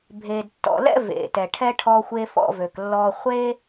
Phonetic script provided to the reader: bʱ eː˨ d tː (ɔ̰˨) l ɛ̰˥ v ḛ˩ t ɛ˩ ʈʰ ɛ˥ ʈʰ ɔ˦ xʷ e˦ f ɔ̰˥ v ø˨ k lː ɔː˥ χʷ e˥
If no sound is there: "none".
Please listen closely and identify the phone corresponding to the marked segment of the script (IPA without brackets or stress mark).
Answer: ɔ̰˨